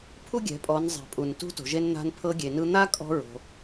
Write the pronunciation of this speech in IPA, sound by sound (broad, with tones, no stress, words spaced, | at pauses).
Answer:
pʰu˥ɡʲɛ̤˩˧pʼɔ˩˧n zˤɛ̤˩pʼu˩n tṳ˧˥to̤˩ʒe˧nn̪a̤˧n pʰɤ˧ɡʲe˩nɯ˧ n̪a˥kʼɔ̤˧ ɹo̤˩